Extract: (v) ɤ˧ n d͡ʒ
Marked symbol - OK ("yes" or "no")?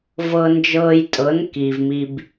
yes